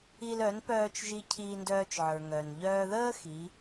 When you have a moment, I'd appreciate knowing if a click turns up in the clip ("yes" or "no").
no